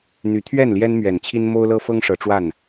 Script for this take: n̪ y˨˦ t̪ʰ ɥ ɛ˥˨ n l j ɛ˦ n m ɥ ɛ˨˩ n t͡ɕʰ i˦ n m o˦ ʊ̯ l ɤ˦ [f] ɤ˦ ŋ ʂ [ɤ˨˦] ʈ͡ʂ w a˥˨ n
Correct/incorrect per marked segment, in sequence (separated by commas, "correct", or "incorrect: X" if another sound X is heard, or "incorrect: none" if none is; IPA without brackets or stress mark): correct, correct